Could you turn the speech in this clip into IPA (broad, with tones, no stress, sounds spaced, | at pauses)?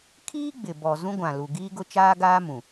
kʰ iː˦ ɡ͡b ɪ˨ b ɔ˨ z ũ˦ ɡʷ ã˨ l u˨ ɡ iː˦ ɡ ʊ˦ t͡ʃ aː˦ ɡ aː˦ m ũ˨